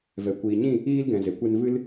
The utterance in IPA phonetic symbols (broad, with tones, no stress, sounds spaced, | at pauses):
v ɛ˨ kʷ iː˨ ɲ ĩ˦˨ | iː˦ l ɡ ɛ̃˨ z e˨ kʷ e˦ n v ɨ˦ l